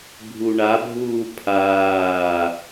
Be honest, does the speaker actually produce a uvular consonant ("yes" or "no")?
no